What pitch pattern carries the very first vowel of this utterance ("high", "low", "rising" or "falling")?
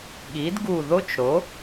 rising